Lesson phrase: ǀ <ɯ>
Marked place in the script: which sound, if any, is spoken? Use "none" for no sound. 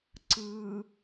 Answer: ɯ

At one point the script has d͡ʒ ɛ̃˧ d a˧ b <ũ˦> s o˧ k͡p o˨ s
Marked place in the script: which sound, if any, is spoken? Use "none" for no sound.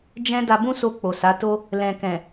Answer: ũ˦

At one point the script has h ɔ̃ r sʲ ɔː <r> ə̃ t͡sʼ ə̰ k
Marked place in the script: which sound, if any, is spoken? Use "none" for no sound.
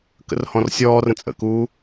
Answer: r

